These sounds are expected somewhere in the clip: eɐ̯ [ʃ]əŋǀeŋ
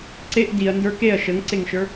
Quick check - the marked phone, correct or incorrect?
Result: correct